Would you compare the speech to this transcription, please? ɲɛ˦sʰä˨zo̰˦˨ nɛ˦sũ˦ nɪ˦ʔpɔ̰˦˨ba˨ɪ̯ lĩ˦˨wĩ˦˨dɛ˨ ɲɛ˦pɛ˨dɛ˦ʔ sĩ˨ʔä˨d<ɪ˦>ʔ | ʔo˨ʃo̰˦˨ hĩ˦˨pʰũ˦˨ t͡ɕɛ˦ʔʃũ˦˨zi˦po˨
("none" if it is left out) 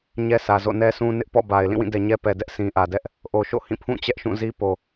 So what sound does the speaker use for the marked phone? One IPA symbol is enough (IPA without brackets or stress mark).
ɛ˦